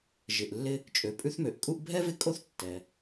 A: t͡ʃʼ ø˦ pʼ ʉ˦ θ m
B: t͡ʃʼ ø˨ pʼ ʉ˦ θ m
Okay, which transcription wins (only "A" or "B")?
B